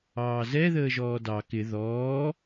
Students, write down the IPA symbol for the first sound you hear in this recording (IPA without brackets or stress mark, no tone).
ɑː